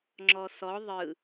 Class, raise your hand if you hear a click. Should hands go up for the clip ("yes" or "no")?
yes